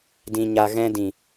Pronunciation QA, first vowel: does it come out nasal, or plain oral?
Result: nasal